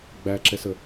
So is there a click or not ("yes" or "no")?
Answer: yes